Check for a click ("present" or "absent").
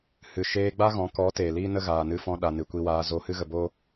absent